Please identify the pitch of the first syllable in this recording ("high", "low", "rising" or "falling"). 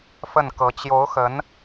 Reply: falling